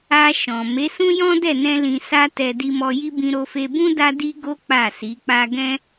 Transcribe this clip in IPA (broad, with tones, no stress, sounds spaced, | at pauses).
a˧ ʃ ɔ̃˨ m e˨˦ s ũ˦ j ɔ̃˦ d ɛ˦˨ n ɛ̃˧ l ĩ˧ s a˦ t ɛ˧ d i˧ m ɔ˧ j i˦ b ĩ˧ ɾ o˧ f e˧ b ũ˦ d a˦ d i˦ ɡ o˦ k͡p a˦˨ s i˨˦ k͡p a˦ ɡ ɛ̃˦